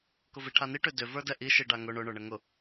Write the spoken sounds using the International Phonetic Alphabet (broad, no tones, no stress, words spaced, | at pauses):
kʊviʈʰani ʈʏdʏ və˞dɛʔi ʃiɖaŋʊ ɳʊ ɳə˞ɳəŋʊ